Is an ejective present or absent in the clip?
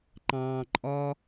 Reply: present